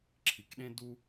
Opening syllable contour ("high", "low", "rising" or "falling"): low